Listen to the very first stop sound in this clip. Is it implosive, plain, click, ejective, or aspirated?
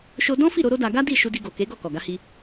plain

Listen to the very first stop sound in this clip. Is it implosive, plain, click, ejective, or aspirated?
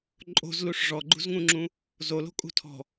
click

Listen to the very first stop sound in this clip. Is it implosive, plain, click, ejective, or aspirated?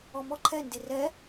click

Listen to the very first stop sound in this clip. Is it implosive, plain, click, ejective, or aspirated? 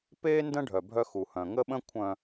plain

